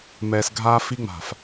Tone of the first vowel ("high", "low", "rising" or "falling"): low